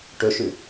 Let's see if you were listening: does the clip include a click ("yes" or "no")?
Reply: no